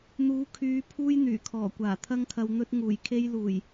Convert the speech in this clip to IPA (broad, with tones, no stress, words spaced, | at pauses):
n̪uː˨˥kʰyː˨˧ pʰuː˥jn̪yː˨˩kʰɔː˨˩kʷaː˨˩ t̪ʰɐ˧ŋkʰɐ˨w n̪ɵ˧t̚ ŋuː˨˩jkʰe˥j luː˨˩j